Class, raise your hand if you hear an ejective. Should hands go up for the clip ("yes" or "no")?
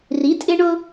yes